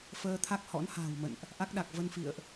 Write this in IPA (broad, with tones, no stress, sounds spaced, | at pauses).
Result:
f əː˧ t̪ʰ a˦˥ k̚ h ɔ̰˧˥ n h a̤ː˨˩ w m ə̰˧˨ n ʔ | ʔ a˦˥ k̚ ɗ a˨˩ k̚ v ə˧ n f ḭ˧˨ ə̯ ʔ